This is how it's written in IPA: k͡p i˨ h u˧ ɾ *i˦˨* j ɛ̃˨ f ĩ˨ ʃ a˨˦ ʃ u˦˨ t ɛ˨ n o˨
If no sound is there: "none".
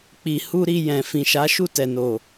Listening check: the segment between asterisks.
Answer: i˧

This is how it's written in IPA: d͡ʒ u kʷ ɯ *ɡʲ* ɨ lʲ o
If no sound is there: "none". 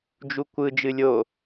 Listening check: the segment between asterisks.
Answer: d͡ʒ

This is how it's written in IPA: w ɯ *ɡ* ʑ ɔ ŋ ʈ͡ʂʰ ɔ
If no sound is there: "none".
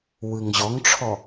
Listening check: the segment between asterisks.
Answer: ŋ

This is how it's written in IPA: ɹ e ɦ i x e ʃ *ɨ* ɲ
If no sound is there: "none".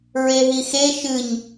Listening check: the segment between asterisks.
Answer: ɨ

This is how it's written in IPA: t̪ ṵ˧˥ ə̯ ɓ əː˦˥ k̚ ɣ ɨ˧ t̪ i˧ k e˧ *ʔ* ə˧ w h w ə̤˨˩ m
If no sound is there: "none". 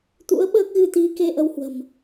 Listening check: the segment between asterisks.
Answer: ʔ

